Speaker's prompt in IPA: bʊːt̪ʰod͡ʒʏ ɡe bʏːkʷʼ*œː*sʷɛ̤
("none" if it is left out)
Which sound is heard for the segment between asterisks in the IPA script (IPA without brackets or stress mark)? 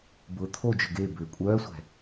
œː